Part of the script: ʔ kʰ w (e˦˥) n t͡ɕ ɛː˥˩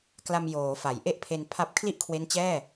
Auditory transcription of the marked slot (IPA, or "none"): e˦˥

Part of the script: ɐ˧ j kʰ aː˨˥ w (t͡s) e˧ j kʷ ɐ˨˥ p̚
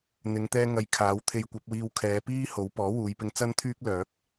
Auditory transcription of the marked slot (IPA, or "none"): t̪ʰ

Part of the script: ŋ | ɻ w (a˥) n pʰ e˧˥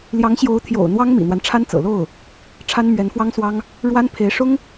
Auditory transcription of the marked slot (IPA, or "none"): a˥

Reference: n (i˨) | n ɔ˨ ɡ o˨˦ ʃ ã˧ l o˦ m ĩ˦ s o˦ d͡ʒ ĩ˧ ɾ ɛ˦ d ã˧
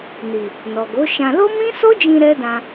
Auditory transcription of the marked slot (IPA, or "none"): i˨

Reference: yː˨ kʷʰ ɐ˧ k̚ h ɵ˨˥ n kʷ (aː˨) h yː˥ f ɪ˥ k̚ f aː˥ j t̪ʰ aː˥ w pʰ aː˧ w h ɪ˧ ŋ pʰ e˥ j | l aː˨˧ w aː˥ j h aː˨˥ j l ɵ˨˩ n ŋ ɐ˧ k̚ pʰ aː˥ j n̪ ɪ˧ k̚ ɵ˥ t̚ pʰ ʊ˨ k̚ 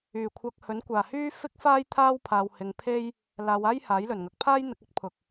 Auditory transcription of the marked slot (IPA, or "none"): aː˨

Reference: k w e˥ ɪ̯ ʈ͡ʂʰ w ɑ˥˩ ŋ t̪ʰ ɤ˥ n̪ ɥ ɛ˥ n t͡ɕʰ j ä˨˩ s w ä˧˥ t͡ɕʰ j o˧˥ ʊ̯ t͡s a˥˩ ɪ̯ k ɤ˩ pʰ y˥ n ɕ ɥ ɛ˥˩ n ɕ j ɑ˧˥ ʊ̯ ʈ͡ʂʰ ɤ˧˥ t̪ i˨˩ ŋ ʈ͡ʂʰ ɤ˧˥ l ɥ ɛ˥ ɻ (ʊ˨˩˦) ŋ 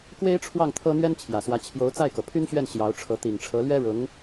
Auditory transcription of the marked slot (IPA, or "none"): ʊ˧˥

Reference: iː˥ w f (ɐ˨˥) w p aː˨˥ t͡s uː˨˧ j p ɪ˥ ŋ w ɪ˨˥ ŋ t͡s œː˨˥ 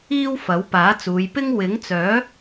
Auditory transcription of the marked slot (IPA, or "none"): ɐ˨˥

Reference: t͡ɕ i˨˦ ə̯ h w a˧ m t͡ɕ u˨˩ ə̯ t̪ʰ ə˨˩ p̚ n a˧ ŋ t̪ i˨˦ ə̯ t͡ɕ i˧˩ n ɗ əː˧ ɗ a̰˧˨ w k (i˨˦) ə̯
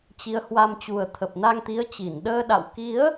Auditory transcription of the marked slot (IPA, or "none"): i˨˦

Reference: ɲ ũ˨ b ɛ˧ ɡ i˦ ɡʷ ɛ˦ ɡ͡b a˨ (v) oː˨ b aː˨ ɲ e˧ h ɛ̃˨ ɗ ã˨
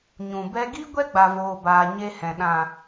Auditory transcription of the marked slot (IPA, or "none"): v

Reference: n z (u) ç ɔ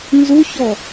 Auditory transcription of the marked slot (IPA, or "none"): u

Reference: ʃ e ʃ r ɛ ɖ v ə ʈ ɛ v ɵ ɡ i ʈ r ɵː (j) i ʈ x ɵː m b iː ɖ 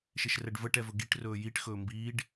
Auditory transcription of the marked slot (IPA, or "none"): j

